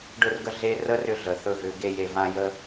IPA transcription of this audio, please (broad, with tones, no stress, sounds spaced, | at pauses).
ɖ ɵ˧ r ɡ ə˧ ɮ e˦ r ə˦ r ʏ˧ ɮ ə˨ θ ɵ˧ ɣ ʏ˨˦ ɡ e˧ j e˨ v ã˧ j ə˦